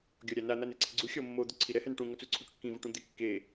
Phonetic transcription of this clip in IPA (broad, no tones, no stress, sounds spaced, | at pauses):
ɡʲ ɔ ɾʲ a n a n̪ a n e ǀʰ ɪ ɡ͡ǀ u xʲ ɔ mː o d̪ u ǀʰ i ɾ ɛ h ɛ n ʈ ũ ŋ ɔ t͡s u ǀʰ u ʈ kː ĩ v ʊ ʈ ũ d̪ ɪ kː e